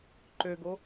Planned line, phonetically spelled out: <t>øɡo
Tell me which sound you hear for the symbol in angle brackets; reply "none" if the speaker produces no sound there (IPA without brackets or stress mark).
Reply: ǃ